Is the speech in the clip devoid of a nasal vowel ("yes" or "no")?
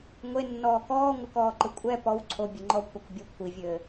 yes